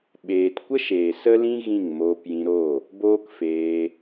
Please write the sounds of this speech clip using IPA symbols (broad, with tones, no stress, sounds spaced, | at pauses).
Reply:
ɓ eː˨ t kʷ ə˦ ʃ eː˨ s ə˦ l ĩ˦ ɣ ĩ˦˨ ŋ m oː˧ p j ĩ˧ ɾ o˦˨ | b oː˦ k f eː˧